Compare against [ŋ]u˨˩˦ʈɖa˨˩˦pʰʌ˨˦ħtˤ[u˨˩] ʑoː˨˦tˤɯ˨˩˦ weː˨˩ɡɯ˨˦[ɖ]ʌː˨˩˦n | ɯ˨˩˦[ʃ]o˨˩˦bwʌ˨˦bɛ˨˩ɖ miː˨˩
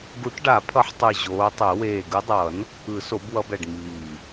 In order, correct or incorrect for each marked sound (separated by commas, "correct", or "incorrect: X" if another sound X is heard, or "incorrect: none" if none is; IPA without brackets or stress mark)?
incorrect: ɡ, incorrect: ɯ˨˩, incorrect: dˤ, incorrect: s